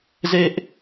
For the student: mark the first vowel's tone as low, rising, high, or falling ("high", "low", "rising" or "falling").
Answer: high